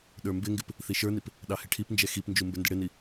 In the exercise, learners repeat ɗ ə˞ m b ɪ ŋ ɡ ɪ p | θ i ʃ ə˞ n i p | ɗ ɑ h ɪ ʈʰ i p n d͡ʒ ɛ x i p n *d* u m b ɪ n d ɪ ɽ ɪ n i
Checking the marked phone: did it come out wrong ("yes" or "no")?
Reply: yes